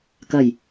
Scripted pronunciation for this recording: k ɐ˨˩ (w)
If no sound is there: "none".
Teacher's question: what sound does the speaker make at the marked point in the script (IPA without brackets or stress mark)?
j